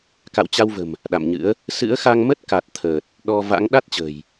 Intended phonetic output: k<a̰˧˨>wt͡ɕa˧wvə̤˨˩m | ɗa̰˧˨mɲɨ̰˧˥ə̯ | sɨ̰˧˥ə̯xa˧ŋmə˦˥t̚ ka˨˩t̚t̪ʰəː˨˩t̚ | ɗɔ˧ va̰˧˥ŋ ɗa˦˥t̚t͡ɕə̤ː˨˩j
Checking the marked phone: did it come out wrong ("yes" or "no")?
no